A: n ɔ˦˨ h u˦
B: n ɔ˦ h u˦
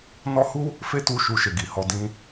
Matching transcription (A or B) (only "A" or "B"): B